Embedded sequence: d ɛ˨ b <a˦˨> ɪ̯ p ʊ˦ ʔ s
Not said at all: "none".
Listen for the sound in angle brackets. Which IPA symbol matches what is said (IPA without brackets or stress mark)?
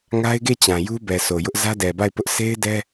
a˦˨